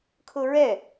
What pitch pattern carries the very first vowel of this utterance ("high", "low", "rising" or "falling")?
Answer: high